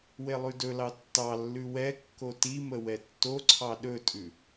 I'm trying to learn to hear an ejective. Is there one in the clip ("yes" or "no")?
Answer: yes